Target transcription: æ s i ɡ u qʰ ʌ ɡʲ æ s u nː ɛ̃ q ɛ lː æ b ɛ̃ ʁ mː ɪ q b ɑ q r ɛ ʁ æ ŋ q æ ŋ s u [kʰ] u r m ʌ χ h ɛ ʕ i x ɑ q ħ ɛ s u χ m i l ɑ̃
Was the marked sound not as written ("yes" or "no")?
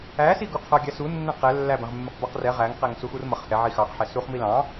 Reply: yes